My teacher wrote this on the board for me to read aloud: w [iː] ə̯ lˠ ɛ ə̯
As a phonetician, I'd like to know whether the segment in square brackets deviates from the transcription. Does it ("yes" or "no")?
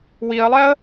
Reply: yes